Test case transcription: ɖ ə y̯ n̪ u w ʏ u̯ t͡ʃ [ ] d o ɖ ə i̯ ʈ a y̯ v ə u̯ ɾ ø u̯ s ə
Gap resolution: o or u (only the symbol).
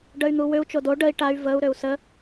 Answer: o